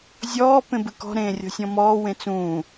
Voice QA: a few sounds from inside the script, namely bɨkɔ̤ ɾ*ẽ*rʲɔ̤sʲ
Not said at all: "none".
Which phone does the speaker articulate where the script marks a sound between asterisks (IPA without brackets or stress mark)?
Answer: ẽː